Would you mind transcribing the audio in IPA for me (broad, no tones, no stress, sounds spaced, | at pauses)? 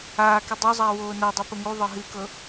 aː k ə dˤ o zˤ aː w oː n a dˤ o p ə ŋ u ðˤ ɤ ɦ ɨ k ɤ